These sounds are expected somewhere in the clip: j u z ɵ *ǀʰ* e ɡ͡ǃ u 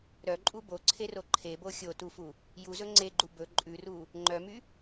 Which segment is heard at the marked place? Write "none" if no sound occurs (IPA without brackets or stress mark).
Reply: ŋ͡ǀ